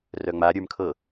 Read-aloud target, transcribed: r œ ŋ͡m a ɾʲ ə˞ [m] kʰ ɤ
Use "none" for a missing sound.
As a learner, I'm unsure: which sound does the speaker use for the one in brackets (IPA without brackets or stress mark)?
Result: m